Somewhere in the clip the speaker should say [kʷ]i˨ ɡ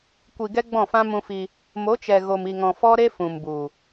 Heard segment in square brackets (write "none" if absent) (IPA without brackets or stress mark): kʷ